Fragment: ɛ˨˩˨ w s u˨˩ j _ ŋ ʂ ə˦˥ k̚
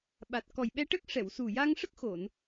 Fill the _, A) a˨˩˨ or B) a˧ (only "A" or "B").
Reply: B